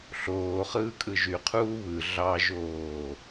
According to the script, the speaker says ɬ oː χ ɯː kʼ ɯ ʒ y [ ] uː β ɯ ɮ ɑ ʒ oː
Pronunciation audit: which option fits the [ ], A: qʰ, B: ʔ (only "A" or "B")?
A